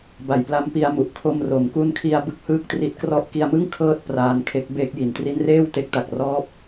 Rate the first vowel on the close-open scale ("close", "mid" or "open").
open